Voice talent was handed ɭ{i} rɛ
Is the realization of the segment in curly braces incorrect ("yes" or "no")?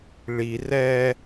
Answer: no